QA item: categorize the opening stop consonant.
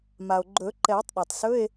click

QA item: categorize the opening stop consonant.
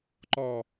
click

